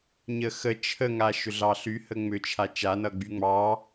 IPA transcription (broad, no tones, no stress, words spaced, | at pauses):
ɲəxə t͡ʃʰəŋa ʃʏɮɑɬyhə ŋ͡mʏt͡ʃʰa t͡ʃanʌ ɡ͡byŋ͡mɑ